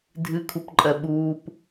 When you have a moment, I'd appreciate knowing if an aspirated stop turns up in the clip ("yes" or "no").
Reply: yes